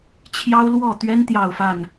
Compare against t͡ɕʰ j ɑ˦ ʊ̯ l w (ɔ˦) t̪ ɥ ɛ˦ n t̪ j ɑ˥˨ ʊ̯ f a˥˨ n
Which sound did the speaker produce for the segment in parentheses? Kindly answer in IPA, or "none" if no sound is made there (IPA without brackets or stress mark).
ɔ˥˨